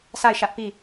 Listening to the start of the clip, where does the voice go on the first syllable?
falling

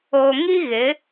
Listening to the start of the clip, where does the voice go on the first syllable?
low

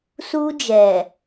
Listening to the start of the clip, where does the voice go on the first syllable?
high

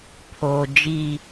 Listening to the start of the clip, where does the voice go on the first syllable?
low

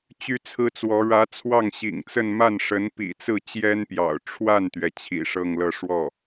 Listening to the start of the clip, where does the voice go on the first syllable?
high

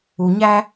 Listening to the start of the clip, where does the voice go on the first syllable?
low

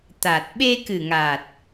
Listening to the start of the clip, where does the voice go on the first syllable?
low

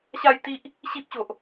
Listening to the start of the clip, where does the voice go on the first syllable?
falling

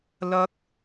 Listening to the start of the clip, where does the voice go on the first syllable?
high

